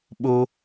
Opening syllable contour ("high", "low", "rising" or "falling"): high